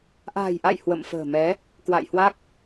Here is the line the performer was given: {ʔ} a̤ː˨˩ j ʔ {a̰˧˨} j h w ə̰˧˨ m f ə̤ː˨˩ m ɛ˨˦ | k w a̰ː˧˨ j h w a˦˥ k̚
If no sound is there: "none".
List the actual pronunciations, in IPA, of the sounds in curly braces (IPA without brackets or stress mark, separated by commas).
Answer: ʔ, a̰˧˨